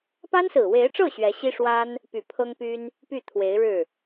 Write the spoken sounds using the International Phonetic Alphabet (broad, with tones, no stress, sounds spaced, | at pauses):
p a˥ n s ɹ̩˨˩ w e˧˥ ɪ̯ ʈ͡ʂ ɤ˥˩ ɕ ɥ ɛ˧˥ ɕ i˥ ʂ w a˥ n | p y˨˩ pʰ ɤ˥ ŋ p y˥ n | p y˥˩ t̪ʰ w e˧˥ ɪ̯ ɻ ɻ̩˥˩